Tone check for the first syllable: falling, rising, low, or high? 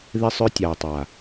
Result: high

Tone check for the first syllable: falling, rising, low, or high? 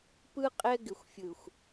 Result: high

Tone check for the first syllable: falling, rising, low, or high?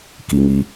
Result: low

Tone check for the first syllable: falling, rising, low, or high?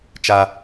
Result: high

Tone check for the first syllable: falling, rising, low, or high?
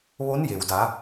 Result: rising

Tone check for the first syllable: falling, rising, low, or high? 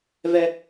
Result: low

